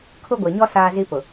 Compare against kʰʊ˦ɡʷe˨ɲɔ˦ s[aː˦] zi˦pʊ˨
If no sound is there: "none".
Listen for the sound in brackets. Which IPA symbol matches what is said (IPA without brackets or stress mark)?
aː˦